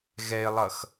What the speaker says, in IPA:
ɣɛɪ̯lˠʌx

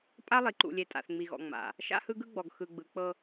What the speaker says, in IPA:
pʼa˦lˠi˨ǃṵ˨lʲe˨ tʼa̰˨θŋ͡mi˨ɣɔ̰˨ ŋ͡ma̰˨ | ʃa̰˦hɯ˦ɡɯ˦ɡ͡bɔ˨ɡ xɯ˨ɡ͡bɯ˨k͡pɤ˦

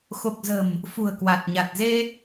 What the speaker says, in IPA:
xo˨˩k̚zə̤˨˩m | fṳ˨˩ə̯kwa˨˩t̚ɲa˨˩t̚ ze˧

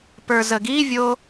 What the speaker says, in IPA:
pə˞zəɡivʲo

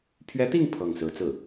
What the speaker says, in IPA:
pʰɥɛ˧˥t̪i˥˧ŋ pʰɤ˥˩ŋ sɹ̩˧˥t͡sɹ̩˥˩

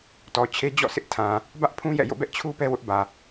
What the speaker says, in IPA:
tɔ˨t͡ɕʰe˦ d͡ʑɔ̰˦˨sʰɪ˦ʔtʰã˨ | bä˦ʔpʰũ˦ jɛ̰˦˨jo̰˦˨bɛ˦ʔ t͡ɕʰu˦ pɛ˦wʊ˦ʔbä˨

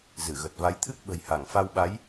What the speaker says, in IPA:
zɨ˧˩ɣə˨˩t̚va˨˦jt̪ʰɨ˦˥k̚ ɓə̤˨˩jha˧˩ŋfa˧wɓa˨˦j

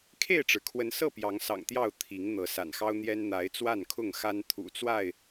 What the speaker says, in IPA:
kʰe˥˨ɪ̯ʈ͡ʂɻ̩˩kʰwə˨˦nsɤ˥˨ pjɑ˨˦ŋsɑ̰˨˩ŋt̪jɑ˥˨ʊ̯ t̪ʰi˨˦ŋn̪ɤ˨˦ sa̰˨˩nxɑ˦ʊ̯n̪jɛ˦n n̪a˨˦ɪ̯ t͡swa˥˨nkʰʊ˥˨ŋxa˦n t̪ʰṵ˨˩t͡swa˥˨ɪ̯

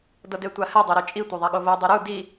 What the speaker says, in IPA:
dɤdetʷahɛ dˤoɾut͡ʃʼi tʷeðˤaɠovo dˤuɾu di

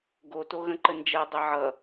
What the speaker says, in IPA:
ɡotoɣə̃ ǃənd͡ʒɜ dˤɘʕʌ

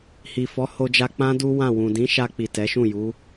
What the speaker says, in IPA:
hi˨fɔ˨˦ho˧d͡ʒa˧ k͡pã˦ du˦wã˦˨wũ˨ dĩ˨˦ʃa˧k͡pi˨ tɛ˨˦ʃũ˦˨ ju˨˦

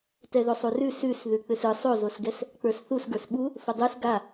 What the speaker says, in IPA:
tɛðosˤurʉ sʉs ðʉk͡pʏsɯ sˤozosɡɛs | k͡pə˞sθus ɡə˞sɓu | fədˤɯs ɡa

